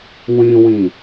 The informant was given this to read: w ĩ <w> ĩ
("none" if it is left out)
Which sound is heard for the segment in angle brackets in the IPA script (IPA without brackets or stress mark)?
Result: w